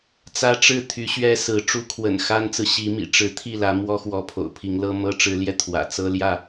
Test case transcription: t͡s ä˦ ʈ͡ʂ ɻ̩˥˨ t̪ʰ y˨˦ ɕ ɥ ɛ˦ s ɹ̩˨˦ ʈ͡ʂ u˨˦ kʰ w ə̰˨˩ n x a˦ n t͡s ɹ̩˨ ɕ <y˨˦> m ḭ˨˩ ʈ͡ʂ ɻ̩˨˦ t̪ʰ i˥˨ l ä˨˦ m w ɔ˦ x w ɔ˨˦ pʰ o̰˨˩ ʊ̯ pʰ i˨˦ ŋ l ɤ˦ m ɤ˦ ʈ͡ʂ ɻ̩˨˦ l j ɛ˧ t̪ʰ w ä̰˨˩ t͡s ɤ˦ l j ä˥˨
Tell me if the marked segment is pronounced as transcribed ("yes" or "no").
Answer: no